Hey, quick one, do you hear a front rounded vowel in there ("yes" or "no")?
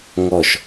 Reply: no